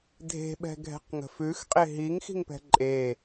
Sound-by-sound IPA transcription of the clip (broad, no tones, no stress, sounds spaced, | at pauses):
dʱ e̤ ɓ ɛ̤ ɡʱ ɛ̤ q ŋ ə̤ f ʉ x qʼ e ɦ i ŋ x i̤ ŋ p ɛ̤ ǃʼ e